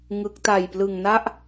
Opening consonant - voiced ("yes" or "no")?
yes